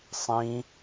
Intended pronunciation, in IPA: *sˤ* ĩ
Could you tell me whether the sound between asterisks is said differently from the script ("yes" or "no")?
no